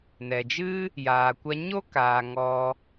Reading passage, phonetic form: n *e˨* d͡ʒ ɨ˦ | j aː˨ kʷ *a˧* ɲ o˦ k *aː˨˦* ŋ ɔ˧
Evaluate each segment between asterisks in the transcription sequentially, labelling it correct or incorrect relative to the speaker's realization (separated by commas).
incorrect, correct, incorrect